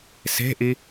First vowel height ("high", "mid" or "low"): mid